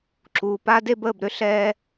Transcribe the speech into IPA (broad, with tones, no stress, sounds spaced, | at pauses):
ǁ uː˨ p a˦ d e˦ b əː˦˨ b ɾ ʏ˦ ɬ ɛː˦